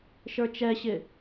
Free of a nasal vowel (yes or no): yes